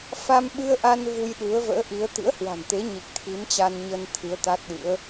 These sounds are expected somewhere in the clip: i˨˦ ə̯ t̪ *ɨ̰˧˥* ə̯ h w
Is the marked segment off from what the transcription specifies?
no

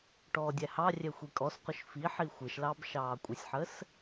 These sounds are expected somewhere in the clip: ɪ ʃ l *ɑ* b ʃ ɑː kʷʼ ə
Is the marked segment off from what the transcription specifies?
no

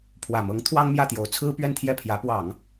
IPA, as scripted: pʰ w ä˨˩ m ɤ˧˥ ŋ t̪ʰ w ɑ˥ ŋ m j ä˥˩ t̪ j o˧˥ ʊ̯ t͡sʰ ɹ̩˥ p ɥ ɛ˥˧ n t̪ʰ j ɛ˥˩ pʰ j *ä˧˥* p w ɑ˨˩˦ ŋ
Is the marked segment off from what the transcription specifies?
no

